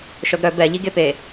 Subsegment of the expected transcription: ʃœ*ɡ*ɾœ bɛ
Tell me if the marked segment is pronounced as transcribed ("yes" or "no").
yes